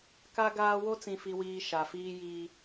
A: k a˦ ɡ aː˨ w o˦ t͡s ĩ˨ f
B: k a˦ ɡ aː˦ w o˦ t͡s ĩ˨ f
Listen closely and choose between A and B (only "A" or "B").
B